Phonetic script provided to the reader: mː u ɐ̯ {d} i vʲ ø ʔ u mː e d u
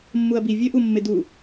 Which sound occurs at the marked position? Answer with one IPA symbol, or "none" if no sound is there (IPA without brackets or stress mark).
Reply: b